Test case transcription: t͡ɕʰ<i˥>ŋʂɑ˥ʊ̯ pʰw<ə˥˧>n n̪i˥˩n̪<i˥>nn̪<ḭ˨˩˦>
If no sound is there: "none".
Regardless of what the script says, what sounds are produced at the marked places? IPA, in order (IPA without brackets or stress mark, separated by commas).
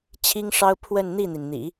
i˥, ə˥˧, i˩, ḭ˨˩˦